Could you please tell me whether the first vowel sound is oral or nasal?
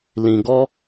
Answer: nasal